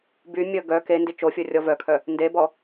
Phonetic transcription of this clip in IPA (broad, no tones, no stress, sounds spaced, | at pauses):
b y mʲ ə ɡ œ k e n d i t͡ʃ o fʲ o rʲ ɔ v œ kʰ œ | n d e b ɔ